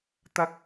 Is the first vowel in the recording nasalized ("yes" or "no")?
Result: no